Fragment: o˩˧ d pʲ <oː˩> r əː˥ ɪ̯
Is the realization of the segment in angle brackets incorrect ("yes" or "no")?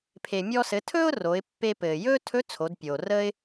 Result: no